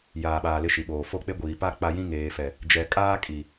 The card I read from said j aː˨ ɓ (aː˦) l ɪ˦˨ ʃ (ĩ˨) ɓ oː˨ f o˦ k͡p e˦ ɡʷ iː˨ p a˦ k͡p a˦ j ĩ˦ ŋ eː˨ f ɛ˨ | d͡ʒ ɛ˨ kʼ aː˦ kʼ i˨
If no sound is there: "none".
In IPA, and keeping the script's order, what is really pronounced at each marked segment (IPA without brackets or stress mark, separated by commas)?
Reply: aː˨, i˨